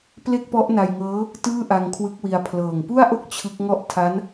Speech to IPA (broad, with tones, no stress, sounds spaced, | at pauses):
p l e˥˩ k̚ p ɔ˦˥ ʔ n a˧ j ŋ ɤː˦˥ | t ɯː˥˩ ʔ a˧ ŋ kʰ w ɯ˦˥ k̚ w i˧ a̯ pʰ l ɤː˨˩ ŋ p u˥˩ a̯ ʔ o˥˩ k̚ t͡ɕʰ ɯ˦˥ k̚ ŋ ɔ˥˩ ʔ tʰ a˦˥ n